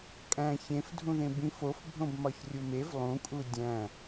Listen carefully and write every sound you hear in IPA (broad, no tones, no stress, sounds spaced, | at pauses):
kʼ æ̃ ç ẽ f dʱ ũ ð ẽ b ĩ f o f bʱ õ b m ɒ ç rʲ u m e v lˠ ũ kʼ u dʲ æ̃